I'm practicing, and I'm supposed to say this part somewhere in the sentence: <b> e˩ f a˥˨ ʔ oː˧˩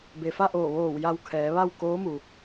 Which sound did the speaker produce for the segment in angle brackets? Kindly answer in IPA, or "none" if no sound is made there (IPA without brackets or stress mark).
b